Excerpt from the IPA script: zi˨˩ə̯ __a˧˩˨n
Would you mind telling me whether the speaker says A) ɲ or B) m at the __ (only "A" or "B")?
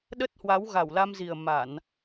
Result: B